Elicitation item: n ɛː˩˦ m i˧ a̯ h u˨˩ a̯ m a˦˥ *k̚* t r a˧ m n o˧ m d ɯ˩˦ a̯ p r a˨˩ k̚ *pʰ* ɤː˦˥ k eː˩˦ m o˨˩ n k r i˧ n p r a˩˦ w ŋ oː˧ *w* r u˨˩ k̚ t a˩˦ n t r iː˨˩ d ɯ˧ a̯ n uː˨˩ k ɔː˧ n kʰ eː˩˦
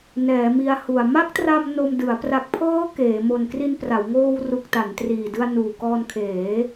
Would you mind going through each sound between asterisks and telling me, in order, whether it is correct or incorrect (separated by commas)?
correct, correct, correct